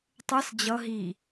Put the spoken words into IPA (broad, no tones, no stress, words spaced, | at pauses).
tˤɜs d͡ʑʌ ɦi